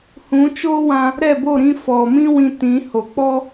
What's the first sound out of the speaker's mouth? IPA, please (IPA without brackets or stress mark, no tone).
h